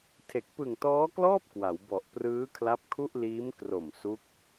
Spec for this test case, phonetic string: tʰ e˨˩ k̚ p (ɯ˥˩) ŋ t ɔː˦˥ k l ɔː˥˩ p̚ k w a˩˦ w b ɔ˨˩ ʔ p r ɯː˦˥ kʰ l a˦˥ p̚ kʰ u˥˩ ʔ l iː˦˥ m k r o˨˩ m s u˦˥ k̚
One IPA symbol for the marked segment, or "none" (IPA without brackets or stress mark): ɯ˨˩